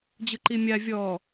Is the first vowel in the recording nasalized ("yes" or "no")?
no